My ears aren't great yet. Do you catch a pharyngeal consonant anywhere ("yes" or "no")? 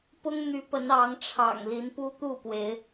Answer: no